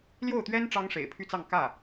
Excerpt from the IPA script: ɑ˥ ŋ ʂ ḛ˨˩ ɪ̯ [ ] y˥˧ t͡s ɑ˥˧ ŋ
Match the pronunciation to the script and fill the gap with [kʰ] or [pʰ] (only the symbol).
pʰ